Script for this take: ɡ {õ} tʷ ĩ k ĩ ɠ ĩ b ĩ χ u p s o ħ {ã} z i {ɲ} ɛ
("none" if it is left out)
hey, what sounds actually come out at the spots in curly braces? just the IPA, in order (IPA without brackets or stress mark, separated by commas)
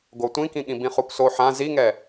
o, ã, ŋ